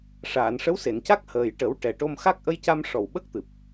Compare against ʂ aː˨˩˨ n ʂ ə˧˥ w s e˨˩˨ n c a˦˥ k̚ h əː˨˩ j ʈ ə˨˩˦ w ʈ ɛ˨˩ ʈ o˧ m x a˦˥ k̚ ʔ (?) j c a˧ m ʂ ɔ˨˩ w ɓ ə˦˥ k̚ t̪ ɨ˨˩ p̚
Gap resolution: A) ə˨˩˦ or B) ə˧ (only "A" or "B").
B